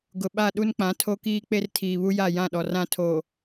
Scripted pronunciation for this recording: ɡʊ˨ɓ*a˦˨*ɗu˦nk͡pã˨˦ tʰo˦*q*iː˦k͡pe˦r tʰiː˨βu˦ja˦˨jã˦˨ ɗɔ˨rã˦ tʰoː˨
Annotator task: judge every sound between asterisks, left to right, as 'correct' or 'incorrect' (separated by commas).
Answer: correct, incorrect